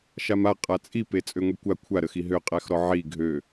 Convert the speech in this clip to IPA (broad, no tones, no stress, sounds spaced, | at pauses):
ʃ a m a qʼ a t͡sʼ i p e t͡sʼ ø ŋʷ i kʷ a kʷʰ a ɾ ə x i ɦ ø qʼ æ x ɾ ɔ ʕ i ɡʱ ø